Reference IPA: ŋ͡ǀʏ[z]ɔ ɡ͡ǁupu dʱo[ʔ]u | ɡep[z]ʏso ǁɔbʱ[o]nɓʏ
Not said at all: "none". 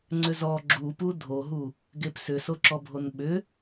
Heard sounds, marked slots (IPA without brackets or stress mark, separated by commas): z, ɦ, s, o